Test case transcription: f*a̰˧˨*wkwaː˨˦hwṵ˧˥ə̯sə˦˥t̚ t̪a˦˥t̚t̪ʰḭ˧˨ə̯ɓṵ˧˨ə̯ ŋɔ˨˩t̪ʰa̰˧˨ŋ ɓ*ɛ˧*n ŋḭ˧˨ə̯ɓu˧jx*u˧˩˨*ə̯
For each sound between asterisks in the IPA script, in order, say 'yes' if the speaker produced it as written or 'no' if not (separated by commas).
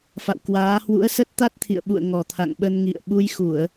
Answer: yes, no, yes